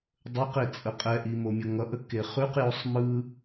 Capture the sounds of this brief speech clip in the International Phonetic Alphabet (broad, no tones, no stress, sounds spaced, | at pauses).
dˤ ə q e t͡sʼ ə qʼ ɛ ʔ i m o mʲ ʌ ŋ ʌ ʔ ə k e χ ʉ q j o sˤ m ɯ